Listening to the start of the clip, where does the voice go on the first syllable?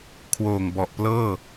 low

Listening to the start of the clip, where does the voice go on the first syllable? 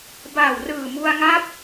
low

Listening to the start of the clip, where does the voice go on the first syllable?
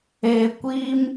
high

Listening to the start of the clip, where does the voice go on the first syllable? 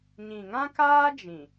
low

